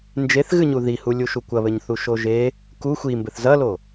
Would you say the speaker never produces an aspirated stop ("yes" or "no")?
yes